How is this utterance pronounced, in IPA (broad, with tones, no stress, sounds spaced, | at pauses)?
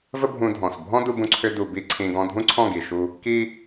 v ə˦ bʱ ũ˧ dʱ ɔ̃˨ s bʱ ɔ̃˦ d u˧ b ũ˧ ǀʰ ʏ˧ d u˨ b i˦ ǀʰ ĩ˧ ɡ ɔ̃˧ dʱ ũ˦ ǀʰ ɔ̃˦˨ ɡ i˨ ʃ u˧ | k i˦